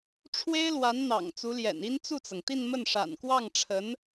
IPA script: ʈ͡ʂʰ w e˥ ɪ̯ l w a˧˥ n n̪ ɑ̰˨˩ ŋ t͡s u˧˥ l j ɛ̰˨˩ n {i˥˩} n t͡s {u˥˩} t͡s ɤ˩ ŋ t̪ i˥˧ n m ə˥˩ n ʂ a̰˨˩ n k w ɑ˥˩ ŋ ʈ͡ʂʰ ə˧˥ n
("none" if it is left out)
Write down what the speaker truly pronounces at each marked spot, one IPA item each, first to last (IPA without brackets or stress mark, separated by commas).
i˥, u˥˩